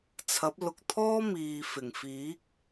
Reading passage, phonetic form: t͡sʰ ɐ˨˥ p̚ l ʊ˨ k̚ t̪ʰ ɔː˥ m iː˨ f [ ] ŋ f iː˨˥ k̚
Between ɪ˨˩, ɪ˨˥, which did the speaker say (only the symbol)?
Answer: ɪ˨˩